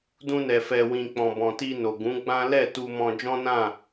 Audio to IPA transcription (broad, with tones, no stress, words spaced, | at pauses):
dũ˧nɛ˨fɛ˨wĩ˨ k͡pɔ̃˨bɔ̃˨ti˧no˨ ɡũ˨˦ɡ͡bã˦ lɛ˦˨ tu˧mɔ̃˧ d͡ʒɔ̃˦nã˦˨